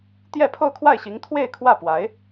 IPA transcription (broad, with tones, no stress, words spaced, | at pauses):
t̪jɛ˥˧pʰo˥˧ʊ̯kʰwa˥˩ɪ̯ɕi˧˥ŋ t̪ʰwe˥˧ɪ̯kʰwä˥˩pwa˧˥ɪ̯